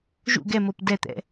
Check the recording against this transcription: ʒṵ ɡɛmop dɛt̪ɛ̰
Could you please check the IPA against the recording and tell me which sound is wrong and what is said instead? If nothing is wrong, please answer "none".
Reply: none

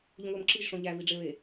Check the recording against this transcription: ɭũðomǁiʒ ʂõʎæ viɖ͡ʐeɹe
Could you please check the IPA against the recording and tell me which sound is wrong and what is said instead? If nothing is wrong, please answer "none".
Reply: ɭ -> ʎ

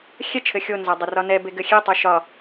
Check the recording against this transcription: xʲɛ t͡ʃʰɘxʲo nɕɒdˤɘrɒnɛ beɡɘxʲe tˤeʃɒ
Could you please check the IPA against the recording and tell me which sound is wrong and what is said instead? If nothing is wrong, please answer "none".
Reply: ɕ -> z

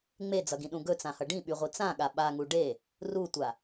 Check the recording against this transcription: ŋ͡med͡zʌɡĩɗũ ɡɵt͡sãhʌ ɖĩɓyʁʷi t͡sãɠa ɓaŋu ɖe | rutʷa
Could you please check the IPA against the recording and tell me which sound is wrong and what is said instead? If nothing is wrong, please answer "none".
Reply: none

